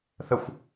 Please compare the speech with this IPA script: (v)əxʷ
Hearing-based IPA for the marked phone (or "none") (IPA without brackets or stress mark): θ